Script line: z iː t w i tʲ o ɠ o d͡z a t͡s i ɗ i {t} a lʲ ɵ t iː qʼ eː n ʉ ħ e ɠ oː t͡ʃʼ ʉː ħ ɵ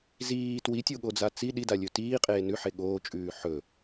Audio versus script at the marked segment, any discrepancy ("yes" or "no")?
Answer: yes